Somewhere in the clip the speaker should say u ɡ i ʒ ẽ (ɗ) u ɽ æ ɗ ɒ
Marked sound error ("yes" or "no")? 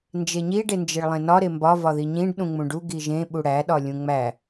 yes